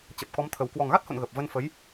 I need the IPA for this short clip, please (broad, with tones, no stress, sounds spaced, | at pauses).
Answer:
t͡ɕ ə˨˩ p̚ k ɔ˨˦ m t̪ʰ ə˨˩ w k w ɔ˨˩ ŋ ɣ a˦˥ t̚ h o̰˧˨ n ɣ ə˨˩ p̚ v ə˧ n f ə˨˦ j